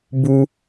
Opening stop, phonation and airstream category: plain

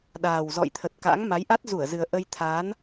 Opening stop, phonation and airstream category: implosive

